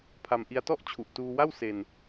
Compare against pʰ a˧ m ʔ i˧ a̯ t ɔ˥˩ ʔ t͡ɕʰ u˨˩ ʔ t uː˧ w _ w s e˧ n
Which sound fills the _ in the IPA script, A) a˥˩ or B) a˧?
A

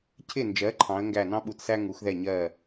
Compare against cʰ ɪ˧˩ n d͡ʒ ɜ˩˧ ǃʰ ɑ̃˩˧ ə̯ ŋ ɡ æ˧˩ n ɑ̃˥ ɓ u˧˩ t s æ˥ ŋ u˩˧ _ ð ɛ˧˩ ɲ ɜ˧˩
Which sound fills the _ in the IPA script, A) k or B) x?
B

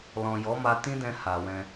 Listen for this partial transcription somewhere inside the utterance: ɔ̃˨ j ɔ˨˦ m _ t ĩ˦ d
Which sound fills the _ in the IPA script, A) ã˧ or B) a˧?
B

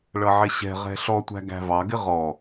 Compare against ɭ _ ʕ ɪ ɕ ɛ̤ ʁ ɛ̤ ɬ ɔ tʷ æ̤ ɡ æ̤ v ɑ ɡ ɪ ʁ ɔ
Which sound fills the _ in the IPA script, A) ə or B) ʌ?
B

